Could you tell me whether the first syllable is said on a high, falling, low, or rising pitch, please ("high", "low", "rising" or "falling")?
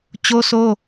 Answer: high